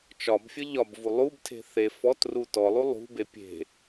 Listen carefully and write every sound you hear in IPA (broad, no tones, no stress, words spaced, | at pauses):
t͡ʃɒbfʲə ʎɒbvu lˠubtʰe̤ θe fɔtru tɔlˠu lˠṳbe pʲe̤